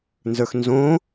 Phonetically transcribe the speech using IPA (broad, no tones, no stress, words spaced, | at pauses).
nzə˞xnzõ